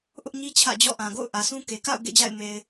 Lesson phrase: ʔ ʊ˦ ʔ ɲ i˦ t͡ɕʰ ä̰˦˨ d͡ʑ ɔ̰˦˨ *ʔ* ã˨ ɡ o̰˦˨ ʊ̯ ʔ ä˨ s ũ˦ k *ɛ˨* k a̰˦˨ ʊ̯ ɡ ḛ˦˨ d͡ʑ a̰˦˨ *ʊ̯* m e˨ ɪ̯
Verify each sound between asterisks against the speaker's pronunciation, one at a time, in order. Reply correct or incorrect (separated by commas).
correct, incorrect, incorrect